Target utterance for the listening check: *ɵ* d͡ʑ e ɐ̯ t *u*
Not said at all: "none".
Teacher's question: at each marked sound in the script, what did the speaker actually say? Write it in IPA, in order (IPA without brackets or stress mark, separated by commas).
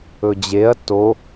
ɵ, o